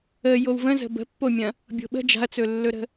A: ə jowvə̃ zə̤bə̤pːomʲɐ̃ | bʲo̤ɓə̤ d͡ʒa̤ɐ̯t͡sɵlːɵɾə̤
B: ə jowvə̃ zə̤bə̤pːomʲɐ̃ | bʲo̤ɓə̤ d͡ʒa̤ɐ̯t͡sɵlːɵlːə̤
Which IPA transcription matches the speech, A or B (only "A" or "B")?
A